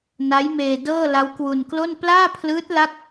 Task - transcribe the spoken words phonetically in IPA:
n a˦˥ j m eː˧ d ɤː˥˩ l a˦˥ w k w u˧ n k l o˥˩ n p l aː˥˩ pʰ l ɯː˦˥ t̚ l a˥˩ k̚

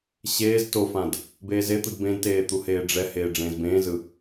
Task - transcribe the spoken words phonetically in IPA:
ɕ eː z t o f ã d | b eː z e t̪ ɯ d b ẽ d t eː t̪ u h eː ɖ͡ʐ ɛ h eː ɖ͡ʐ ẽː z b ẽː z ɯ

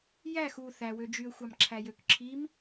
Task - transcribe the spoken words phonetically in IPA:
j æ x u θ æ w ø d͡ʒ y ə̯ xʷ ɑ m ǁʰ æ j ø k ǁʰ i m

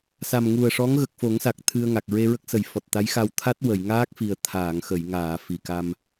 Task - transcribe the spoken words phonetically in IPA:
s a˨˩ m ŋ u˨˩ ə̯ ʂ ɔ˧˥ ŋ ɣ ə˨˩ k̚ f o˨˩˦ ŋ s a˨˩ k̚ t̪ʰ ɨ˧ ə̯ ŋ a˨˩ k̚ ɹ e˧ ɹ ə˦˥ k̚ s ə˨˩ j f ɔ˨˩ t̚ t̪ a˧˥ j x a˧ w t̪ʰ a˦˥ t̚ w ə˨˩˨ j ŋ aː˦˥ k̚ f i˨˩ ə̯ t̪ʰ aː˨˩˨ ŋ x ə˨˩˨ j ŋ aː˨˩˨ f i˨˩ k a˧ m

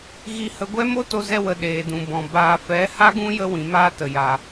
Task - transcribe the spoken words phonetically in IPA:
ɣ i˧ h ə˧ ɡʷ ɛ˦ m o˦ t o˧ z ɛ˧ w ə˧ ɗ eː˨ d ũ˨ b ɔ̃˨ b aː˨ f ɛ˨˦ h a˦ ɡ ũ˦ j ə˧ w ĩ˨ m aː˧ t ə˨ j a˨

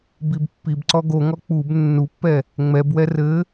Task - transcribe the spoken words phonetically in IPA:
b i b pː i b ǀ ɔ ɡ o ŋ ɔ k͡p u b nː u pː ɛ | ŋ͡m ɛ b w ɛ r ɘ

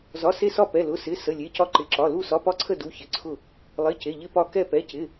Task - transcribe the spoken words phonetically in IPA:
z ɒ˧˥˧ s e˥˧ s ɒ˥˧ p ɛ˧˥˧ l ʊ˧˥˧ s ɪ˧˥˧ s ə˧˥˧ lʲ e˧˥˧ c ɒ˥˧ ǃ ɪ˧˥˧ ǁ ɒ˧˥˧ l u˥˧ s ɒ˧˥˧ p ɒ˥˧ ǀʰ ə˥˧ d u˧˥˧ ç ɪ˧˥˧ ǀʰ ʊ˥˧ | lˠ ɪ˧˥˧ c e˧˥˧ ʎ ɪ˥˧ p ɒ˥˧ k ɛ˥˧ p ɛ˧˥˧ c ɪ˧˥˧

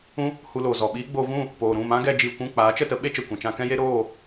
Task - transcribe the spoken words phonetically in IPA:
ũ˦ | h u˧ l oː˨ z ɔ˨ ɓ iː˦ ɡ͡b oː˧ v ũ˦˨ | p oː˨ ɾ ũ˦˨ m ã˦ ɡ ɛ˧ d͡ʒ iː˨ kʷ ũ˦˨ k͡p aː˨˦ t͡ʃ ə˦˨ t ə˦ ɓ e˦ t͡ʃ ə˨ kʷ ɛ̃˨ t͡ʃ ã˧ k ɛ̃˦ j e˦ ɾ oː˦˨

